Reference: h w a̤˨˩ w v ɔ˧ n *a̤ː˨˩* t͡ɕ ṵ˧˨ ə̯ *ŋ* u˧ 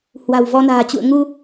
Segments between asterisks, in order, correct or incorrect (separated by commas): correct, correct